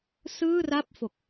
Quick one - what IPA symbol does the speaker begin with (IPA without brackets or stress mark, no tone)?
s